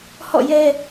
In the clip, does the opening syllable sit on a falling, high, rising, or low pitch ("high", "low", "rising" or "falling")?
falling